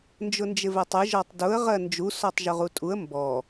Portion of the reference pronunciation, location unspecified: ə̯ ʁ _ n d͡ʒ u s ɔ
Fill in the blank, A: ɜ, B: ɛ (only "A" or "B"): A